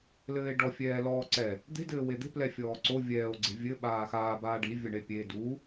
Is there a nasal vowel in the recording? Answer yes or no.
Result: no